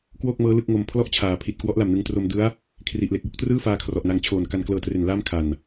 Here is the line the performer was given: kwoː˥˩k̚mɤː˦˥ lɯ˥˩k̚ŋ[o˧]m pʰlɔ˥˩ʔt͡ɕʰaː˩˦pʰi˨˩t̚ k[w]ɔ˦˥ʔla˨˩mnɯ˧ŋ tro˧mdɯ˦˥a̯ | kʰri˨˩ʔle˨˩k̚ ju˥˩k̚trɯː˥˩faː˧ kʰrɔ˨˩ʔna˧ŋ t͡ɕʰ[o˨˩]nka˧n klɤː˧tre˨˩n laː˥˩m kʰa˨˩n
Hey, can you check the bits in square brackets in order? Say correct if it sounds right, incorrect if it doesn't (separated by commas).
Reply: correct, correct, incorrect